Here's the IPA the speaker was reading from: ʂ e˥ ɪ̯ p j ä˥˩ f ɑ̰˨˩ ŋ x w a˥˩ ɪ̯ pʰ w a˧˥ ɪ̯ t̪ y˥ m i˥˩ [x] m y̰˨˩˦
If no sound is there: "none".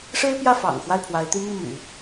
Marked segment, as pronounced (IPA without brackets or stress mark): none